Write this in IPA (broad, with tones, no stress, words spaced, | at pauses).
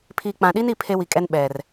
pʰi˨k͡pã˨ɗi˦ni˨ pʰe˦wi˨kʼɛ˦n ɓɛ˨r